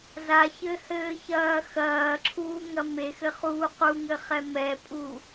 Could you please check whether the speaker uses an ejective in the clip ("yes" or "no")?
yes